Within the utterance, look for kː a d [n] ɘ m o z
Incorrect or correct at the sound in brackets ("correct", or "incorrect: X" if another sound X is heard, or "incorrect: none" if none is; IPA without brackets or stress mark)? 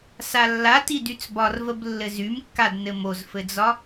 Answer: correct